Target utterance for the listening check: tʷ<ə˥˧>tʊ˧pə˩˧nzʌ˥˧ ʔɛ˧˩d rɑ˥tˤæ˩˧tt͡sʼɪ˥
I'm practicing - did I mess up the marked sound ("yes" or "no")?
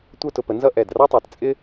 yes